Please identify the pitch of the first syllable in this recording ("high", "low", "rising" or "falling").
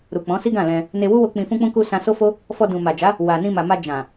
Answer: low